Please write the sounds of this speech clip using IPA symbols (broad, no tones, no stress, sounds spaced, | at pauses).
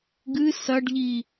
ɡ ɨ s ɐ ɖ ʎ i